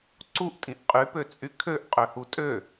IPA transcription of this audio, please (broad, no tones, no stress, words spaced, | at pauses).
ǀuʔtʼĩʔ qʼypøt͡sʼy kʰøʔqʼøhu tʼø